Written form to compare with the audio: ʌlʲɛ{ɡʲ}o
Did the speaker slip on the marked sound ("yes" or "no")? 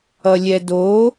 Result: yes